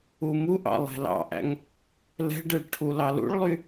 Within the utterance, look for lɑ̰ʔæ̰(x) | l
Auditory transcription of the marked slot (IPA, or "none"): ŋ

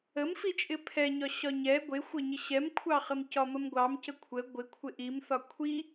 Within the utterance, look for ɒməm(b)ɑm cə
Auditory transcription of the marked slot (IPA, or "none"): ɡʷ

